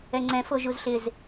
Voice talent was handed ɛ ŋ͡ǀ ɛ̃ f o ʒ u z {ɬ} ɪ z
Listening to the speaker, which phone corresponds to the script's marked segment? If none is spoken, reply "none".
ɬ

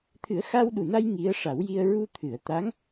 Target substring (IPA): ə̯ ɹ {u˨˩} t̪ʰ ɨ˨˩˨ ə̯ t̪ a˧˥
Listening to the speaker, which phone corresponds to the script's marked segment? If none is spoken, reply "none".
u˧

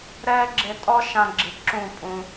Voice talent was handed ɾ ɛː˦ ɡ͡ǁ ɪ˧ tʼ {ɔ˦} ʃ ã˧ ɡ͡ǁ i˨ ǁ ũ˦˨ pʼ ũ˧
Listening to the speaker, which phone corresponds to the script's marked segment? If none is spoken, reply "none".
ɔ˦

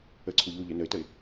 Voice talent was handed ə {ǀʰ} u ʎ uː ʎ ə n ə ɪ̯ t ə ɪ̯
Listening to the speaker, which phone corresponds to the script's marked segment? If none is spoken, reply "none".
ǀʰ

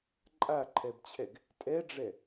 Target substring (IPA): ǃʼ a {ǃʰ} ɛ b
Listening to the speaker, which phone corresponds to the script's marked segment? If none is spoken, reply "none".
ǃʰ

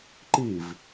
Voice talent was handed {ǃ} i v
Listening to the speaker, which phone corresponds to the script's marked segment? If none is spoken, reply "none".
ǃ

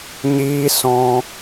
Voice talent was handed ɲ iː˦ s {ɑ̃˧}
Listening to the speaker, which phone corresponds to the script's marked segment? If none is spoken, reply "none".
ɔ̃˧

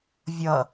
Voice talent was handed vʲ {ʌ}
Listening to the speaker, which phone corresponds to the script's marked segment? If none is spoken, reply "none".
ʌ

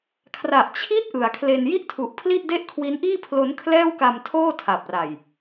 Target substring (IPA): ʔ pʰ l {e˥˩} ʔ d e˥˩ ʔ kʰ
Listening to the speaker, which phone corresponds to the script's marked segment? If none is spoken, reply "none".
i˥˩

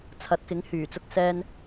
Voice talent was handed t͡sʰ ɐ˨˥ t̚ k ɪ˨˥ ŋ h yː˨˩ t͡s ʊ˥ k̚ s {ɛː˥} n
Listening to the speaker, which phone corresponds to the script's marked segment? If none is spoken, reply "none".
ɛː˥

